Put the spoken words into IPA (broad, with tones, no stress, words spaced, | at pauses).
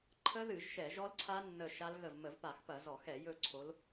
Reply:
ǃʰə˦˥ðɨ˧˩˧ʒ ʃɛ˧˩˧ʒɔ˦˥lǀʰa˦˥ nːə˦˨ʃa˦˥lɣə˦˨v mə˧˩˧vpa˧˩˧xpɐ˧˩˧ zɔ˧˩˧xɛ˧˩˧ jɵ˦˨ǀʰo˨˦l